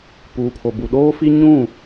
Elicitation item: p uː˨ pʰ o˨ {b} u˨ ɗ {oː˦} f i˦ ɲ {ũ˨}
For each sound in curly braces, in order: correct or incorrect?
correct, correct, incorrect: ũ˦˨

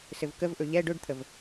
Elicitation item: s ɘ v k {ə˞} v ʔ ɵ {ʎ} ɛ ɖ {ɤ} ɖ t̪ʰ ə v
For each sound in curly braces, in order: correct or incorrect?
incorrect: ə, correct, incorrect: ɵ

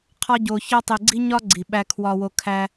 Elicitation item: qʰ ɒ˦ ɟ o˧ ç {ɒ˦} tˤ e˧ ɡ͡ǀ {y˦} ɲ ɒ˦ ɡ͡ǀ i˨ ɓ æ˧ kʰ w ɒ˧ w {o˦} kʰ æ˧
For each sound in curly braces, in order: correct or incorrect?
correct, incorrect: i˦, incorrect: o˧

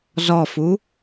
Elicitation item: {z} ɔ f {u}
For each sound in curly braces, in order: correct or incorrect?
correct, correct

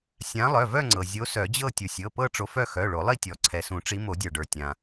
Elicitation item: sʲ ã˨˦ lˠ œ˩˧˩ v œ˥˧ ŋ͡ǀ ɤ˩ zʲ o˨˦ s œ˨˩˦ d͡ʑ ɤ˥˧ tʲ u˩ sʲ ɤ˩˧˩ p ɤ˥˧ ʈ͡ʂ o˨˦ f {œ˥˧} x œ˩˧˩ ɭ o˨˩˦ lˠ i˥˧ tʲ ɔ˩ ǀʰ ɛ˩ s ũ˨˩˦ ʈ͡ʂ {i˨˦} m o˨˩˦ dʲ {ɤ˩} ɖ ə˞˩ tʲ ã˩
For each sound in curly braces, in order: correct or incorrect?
correct, correct, incorrect: ə˞˩

